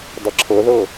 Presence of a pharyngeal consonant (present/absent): absent